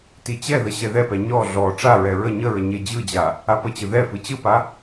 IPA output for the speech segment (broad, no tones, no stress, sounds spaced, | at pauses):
t i t͡ɕ ɛ ð ə ɕ ɛ ð ɛ p ɛ ɲ ɔ ɮ ɔ ʈ͡ʂ a ɹ ɛ ɹ ə ɲ ə ɹ ə ɲ e d͡ʑ ɯ d͡ʑ a | a p ə t͡ɕ ɯ ð ɛ f ɯ t͡ɕ ɯ p a